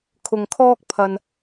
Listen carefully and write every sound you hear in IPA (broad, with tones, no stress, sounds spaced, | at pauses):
kʰ ʊ˨ ŋ kʰ ɔː˥ k̚ pʰ ɐ˨ n